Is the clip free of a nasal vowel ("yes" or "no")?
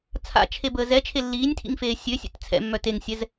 yes